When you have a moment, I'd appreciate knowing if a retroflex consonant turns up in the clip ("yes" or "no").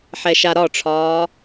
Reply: yes